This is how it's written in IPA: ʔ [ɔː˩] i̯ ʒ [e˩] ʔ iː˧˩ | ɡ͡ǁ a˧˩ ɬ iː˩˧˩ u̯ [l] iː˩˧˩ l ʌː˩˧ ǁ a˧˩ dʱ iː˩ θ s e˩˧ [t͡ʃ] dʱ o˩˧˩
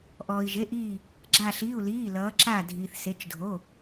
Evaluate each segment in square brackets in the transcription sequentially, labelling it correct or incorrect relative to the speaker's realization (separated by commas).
correct, incorrect, correct, correct